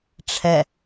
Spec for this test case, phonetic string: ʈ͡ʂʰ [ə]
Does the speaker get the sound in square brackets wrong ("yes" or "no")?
yes